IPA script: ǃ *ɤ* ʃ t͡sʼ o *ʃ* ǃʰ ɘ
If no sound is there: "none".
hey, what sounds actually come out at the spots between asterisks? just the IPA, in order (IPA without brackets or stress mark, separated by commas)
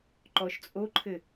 ɔ, none